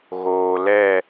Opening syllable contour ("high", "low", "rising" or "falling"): low